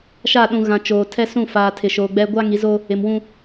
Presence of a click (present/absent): absent